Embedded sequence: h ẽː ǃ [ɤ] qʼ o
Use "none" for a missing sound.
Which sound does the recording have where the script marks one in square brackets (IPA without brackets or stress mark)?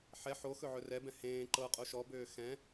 ɤ